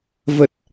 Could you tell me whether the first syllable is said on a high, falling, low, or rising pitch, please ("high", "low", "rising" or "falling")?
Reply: low